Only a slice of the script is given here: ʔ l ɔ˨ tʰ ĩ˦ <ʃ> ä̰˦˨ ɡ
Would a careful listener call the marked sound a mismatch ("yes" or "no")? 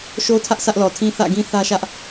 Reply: yes